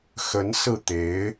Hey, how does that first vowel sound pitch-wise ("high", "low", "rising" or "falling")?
rising